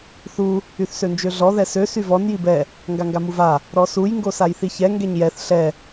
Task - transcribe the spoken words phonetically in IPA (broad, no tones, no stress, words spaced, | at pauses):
θu | yθsønd͡ʒøɮɔ ðɛsø syvɔn jibɛ | ŋɡaŋɡamuva | ɾɔsuj ŋɡosajθiçɛ ŋɡɛɲjɛθ ɬɛ